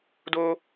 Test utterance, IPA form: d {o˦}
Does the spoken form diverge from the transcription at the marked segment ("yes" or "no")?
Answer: no